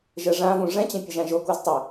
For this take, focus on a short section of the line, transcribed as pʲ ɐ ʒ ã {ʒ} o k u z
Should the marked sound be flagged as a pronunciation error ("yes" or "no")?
no